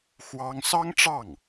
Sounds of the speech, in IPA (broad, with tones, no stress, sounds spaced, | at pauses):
x w ɑ˥ ŋ s ɑ˥ ŋ ʈ͡ʂ ɑ˥˩ ŋ